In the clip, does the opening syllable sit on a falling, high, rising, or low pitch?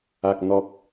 low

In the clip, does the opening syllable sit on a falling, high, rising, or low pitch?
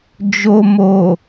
low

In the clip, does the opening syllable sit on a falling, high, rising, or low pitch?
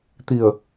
low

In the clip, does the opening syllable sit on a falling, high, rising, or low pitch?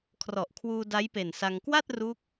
low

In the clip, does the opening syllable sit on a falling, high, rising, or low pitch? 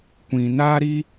low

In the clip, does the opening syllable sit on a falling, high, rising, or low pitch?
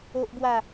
high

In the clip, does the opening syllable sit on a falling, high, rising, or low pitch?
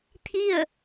falling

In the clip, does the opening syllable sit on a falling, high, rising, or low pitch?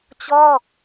falling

